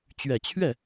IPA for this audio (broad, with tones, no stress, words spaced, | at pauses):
t͡ɕɥɛ˨˩t͡ɕʰɥɛ˥˩